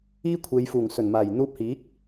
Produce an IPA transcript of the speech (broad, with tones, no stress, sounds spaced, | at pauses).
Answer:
iː˥ kʷʰ e˨˧ j f uː˨˩ ŋ s ɵ˨˩ n m aː˨˩ j n̪ uː˧ p̚ h iː˨˥ k̚